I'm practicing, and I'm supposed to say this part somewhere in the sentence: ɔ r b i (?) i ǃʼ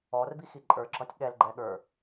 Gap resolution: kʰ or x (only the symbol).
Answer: x